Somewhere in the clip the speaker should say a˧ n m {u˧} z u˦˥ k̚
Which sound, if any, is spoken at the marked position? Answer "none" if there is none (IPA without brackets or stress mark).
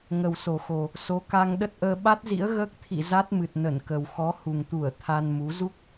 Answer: u˨˦